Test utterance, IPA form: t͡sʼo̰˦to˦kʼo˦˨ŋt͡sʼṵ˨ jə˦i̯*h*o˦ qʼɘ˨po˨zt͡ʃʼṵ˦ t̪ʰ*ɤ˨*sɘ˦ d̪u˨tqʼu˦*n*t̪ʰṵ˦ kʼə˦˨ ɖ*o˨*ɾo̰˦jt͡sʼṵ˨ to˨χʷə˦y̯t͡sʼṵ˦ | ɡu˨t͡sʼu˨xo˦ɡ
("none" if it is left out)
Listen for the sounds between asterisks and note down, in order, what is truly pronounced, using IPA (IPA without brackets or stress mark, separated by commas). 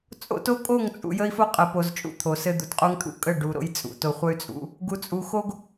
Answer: f, o˨, ŋ, u˨